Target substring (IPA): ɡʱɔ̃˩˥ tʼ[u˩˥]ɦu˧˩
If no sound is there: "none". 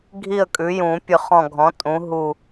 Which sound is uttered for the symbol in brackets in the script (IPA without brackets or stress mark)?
ũ˩˥